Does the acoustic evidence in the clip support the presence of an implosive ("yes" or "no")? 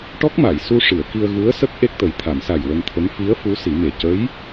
no